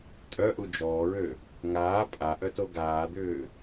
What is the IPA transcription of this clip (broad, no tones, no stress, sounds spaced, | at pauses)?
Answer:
tʼ œ ʔ u d͡ʒ ɔː ɹ ø | ŋ aː pʼ a ʔ œ t o ɡ aː d̪ ʏː